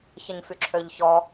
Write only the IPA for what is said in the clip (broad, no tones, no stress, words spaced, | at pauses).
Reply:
çəɲfyǁʰøʎçɔ